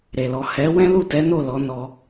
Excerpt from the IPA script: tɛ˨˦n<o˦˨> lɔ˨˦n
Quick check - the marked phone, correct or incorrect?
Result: correct